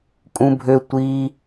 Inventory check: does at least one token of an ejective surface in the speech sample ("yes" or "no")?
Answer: yes